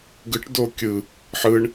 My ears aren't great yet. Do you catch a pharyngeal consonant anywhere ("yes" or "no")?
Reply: yes